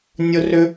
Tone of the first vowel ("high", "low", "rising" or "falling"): high